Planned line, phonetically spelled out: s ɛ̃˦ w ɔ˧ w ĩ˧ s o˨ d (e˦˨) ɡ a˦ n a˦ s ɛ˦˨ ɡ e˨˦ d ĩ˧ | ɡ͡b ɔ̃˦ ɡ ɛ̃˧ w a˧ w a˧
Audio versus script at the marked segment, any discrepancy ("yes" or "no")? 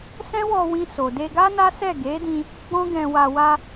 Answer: yes